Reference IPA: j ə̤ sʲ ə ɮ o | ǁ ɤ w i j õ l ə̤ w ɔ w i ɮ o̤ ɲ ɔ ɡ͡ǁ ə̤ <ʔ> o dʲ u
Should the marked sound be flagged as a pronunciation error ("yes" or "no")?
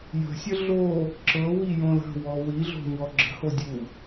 yes